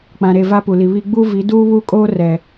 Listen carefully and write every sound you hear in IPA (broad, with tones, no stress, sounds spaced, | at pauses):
k͡p ã˨ ɾ e˨ v a˦ p u˨ l i˨ β i˦ ɡ͡b u˦ v i˨˦ d uː˦ β uː˦ kʼ oː˦ r ɛ˨